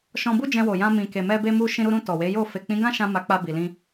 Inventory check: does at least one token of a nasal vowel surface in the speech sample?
yes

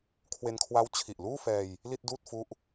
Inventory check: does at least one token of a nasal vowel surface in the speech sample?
no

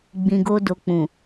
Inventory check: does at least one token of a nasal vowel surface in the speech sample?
yes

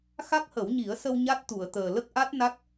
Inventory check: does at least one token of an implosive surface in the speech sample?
no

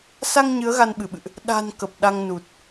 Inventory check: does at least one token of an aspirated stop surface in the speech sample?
no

